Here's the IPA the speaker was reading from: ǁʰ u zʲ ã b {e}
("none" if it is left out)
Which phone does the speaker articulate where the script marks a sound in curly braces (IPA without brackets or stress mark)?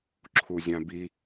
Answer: i